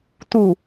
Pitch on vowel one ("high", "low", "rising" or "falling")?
low